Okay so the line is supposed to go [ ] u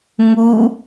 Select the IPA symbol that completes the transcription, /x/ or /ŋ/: ŋ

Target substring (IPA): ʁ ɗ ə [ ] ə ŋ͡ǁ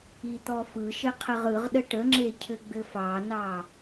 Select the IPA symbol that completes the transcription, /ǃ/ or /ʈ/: ʈ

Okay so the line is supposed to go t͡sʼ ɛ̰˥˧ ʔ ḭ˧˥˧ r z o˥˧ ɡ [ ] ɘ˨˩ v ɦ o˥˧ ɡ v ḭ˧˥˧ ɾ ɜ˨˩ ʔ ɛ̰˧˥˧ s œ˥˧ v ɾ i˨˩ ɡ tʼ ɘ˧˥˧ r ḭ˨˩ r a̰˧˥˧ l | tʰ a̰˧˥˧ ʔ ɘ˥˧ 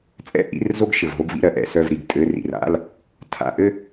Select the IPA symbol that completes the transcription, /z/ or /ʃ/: ʃ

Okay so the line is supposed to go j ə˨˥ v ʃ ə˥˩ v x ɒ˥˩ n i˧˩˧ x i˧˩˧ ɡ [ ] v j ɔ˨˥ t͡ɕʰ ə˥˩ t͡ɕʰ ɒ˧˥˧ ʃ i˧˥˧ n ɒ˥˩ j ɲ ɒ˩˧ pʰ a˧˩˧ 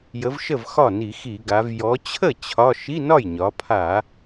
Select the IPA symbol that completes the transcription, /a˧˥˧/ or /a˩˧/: a˩˧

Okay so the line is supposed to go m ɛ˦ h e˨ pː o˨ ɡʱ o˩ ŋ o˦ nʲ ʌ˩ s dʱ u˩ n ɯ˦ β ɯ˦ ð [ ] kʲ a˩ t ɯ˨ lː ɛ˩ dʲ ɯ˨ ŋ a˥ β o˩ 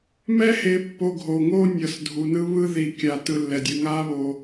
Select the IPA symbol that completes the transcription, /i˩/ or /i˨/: i˩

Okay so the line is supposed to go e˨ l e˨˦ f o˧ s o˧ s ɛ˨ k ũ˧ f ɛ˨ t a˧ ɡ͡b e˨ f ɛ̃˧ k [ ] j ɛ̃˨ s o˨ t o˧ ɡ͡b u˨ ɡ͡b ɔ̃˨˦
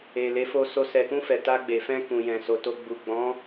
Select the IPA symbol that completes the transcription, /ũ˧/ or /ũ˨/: ũ˨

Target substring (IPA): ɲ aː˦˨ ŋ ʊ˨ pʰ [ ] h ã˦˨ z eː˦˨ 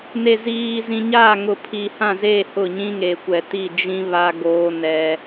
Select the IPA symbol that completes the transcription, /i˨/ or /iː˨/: i˨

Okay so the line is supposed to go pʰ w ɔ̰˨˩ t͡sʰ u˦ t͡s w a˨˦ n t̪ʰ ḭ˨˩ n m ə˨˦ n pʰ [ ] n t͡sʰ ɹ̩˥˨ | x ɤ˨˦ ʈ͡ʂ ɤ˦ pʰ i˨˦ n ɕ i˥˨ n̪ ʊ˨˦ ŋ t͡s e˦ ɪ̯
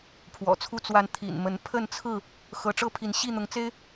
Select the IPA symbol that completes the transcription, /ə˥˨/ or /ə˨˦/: ə˥˨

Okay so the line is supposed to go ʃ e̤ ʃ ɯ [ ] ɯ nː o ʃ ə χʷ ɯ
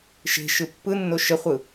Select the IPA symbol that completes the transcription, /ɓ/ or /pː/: pː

